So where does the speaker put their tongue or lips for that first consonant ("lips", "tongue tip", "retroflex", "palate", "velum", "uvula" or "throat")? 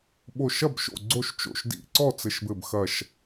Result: lips